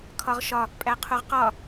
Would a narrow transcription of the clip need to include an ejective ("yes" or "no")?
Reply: yes